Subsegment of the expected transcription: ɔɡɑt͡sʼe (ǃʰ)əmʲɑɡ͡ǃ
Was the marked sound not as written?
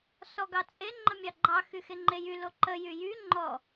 yes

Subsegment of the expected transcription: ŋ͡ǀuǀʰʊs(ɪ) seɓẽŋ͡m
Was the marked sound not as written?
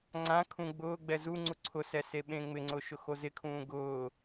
yes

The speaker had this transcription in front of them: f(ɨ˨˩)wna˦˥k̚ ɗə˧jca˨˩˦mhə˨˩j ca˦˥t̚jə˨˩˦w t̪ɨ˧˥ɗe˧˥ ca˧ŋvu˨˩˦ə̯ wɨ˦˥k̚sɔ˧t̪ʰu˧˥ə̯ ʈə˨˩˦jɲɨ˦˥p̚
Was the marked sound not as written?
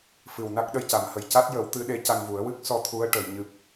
no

